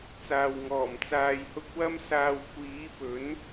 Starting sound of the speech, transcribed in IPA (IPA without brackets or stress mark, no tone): t͡s